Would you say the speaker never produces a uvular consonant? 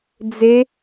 yes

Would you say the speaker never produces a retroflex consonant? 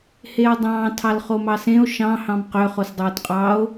yes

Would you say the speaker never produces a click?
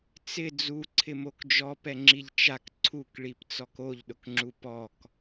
no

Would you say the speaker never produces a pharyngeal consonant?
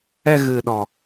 yes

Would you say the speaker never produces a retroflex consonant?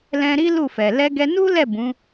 yes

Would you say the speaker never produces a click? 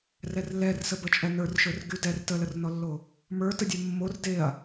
yes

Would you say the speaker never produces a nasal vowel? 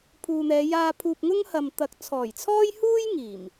yes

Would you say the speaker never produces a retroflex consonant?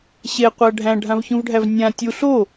no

